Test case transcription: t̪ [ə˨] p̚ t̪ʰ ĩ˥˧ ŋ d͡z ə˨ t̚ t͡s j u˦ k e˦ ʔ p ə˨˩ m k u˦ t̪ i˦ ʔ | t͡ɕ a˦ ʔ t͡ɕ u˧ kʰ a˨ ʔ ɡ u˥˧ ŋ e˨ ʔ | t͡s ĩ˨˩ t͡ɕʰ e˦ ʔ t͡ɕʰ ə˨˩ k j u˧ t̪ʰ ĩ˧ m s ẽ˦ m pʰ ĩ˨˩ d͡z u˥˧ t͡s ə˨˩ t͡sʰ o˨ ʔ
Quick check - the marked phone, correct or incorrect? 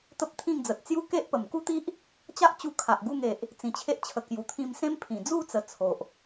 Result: incorrect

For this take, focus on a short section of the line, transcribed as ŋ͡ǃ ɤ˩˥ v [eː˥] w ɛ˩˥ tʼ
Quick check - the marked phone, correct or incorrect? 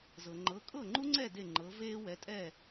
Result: correct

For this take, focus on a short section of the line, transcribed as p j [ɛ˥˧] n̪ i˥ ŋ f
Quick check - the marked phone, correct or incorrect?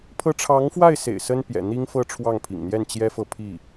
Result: incorrect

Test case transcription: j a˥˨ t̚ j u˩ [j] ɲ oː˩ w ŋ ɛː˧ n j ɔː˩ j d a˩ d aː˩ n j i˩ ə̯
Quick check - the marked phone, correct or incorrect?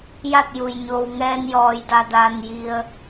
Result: correct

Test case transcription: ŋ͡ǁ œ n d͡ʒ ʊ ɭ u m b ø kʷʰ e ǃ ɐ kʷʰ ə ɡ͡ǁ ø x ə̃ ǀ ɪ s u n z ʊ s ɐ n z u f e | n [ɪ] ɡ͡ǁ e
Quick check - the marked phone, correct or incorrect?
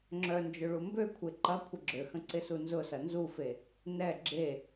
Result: incorrect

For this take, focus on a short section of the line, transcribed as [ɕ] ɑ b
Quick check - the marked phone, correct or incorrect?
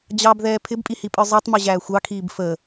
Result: incorrect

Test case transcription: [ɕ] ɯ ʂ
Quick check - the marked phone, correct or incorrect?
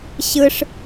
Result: correct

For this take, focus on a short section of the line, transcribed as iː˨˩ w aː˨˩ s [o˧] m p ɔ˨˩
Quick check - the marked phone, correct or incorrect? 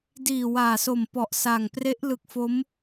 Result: incorrect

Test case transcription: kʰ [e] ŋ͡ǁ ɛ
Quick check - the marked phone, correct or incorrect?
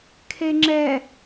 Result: correct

